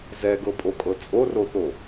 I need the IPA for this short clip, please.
z ɛ ɡ ɤ pʼ o kʼ ɤ t͡sʼ o r o θ o

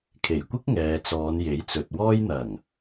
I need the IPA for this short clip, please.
kʰ e˨˩ j kʷ ɪ˥ k̚ ŋ ɛː˨ t͡s ɔː˨˧ n j e˨˥ j t͡s ɵ˨ t̚ w ɔː˥ j n̪ ɐ˨˩ ŋ

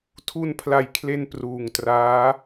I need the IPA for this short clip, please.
tʰ u˧ n pʰ l a˨˩ j kʰ l e˧ n p r uː˨˩ ŋ t r aː˦˥

